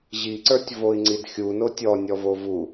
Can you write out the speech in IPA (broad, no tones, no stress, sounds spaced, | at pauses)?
ʑ i ǀ ə˞ tʲ v o i̯ ŋ͡ǀ i d xʲ u n o tʲ ɔ nʲ ɔ v o v u